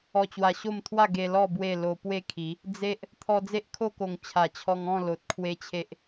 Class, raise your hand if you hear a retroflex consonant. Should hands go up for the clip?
no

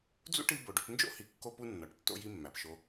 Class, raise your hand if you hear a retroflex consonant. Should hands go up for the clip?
yes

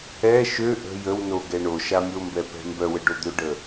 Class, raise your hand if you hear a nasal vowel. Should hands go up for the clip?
no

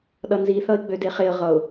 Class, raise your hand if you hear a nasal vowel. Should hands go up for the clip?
no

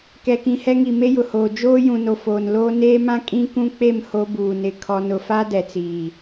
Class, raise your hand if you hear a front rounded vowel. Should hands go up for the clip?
no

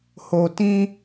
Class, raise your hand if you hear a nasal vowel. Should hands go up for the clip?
yes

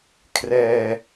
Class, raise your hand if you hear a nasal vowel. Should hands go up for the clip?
no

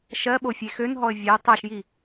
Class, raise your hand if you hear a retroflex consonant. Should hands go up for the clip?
no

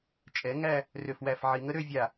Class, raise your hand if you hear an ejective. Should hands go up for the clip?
yes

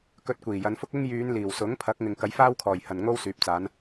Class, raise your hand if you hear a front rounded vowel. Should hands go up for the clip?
yes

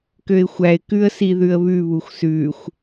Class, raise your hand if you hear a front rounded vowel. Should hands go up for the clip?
yes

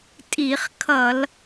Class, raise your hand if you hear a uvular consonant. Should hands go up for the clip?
yes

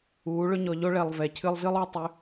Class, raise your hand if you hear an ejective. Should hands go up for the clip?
no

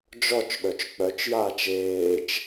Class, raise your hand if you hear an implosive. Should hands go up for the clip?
yes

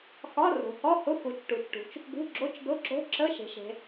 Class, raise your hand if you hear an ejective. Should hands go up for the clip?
no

